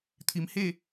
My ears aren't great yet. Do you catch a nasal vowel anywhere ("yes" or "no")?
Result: no